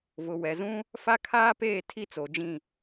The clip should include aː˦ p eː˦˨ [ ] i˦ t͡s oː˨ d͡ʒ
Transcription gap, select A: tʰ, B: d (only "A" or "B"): A